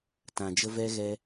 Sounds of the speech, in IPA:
t ã˨ d͡ʒ ə˧ v ɛ˧ ɣ ɛ˧

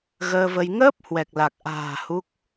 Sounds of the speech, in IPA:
ɣ əː˧ v ə˧ j ŋ əː˦˥ p̚ h w ɛ˨˩ k̚ l a˨˩ k̚ ʔ a̤ː˨˩ h u˦˥ k̚

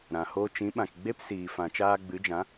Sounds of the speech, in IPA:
ɾ ã˨ h o˦ t͡ʃ ĩ˨˦ ɓ ã˨ k ɡ͡b e˦ p s iː˨ f ã˨ t͡ʃ aː˧ ɡ͡b ɨ˨˦ d͡ʒ ã˨˦

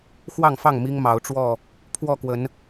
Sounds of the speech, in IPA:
x w ɑ˥˨ ŋ f ɑ˥˨ ŋ m i˦ ŋ m ɑ˨˦ ʊ̯ ʈ͡ʂ w ɔ˥˨ | pʰ w ɔ˥˨ k w ə˨˦ n

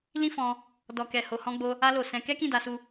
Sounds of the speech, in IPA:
l ĩ˦ f ɔ̃˧ | d ɔ˨ k ɛ˨ h o˨ h ɔ̃˧ ɡ͡b o˧ | a˧ l o˨ s ɛ̃˧ k ɛ˦ k ĩ˦˨ d a˧ s u˧

